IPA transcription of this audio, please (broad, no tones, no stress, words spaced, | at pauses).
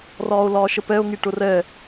rɒːo̯lɒːʃəpɛo̯ ŋiʈʊrɛ